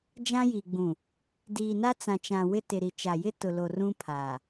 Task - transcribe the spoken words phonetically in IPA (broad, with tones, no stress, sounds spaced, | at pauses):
d͡ʒ ã˦ j i˨ ɡ͡b ũ˨ | d iː˨ n a˦ t͡s ã˨ t͡ʃ ã˨ w ɪ˦ t ɪ˨ ɾ i˨ t͡ʃ a˨ j ɪ˦ t ʊ˨ l o˨ r ũ˦ pʰ aː˨